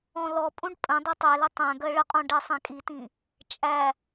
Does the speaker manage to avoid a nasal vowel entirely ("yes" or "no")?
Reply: no